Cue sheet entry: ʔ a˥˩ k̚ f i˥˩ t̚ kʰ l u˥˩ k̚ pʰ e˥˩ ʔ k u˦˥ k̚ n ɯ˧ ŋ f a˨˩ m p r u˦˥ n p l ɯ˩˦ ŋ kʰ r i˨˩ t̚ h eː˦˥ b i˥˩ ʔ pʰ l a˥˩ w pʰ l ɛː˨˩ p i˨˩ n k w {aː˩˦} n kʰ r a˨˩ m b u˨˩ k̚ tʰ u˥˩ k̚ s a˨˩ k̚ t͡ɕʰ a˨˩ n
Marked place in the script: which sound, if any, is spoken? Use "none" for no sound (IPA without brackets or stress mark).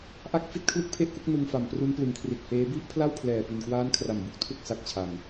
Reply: aː˦˥